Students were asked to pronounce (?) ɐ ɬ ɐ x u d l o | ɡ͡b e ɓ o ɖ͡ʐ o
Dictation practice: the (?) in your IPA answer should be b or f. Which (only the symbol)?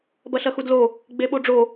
b